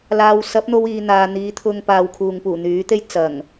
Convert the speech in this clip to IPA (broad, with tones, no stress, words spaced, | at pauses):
laː˧w sɐ˨˥p̚n̪o˧w iː˨n̪aː˨ n̪iː˨˧t̪ʰʊ˧ŋpaː˨˧w kʰuː˨ŋpuː˨˩n̪yː˨˥t̪e˥j t͡sɐ˨˩ŋ